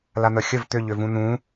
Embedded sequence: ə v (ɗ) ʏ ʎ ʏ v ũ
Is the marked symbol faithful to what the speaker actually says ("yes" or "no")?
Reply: no